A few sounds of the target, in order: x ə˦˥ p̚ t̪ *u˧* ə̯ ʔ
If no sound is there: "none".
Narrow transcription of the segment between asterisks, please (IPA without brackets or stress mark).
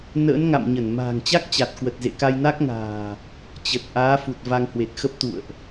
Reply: ṵ˧˨